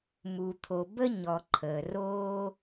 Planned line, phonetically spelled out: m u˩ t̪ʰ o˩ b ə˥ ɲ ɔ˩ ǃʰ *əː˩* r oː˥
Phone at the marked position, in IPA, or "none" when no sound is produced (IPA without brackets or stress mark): əː˩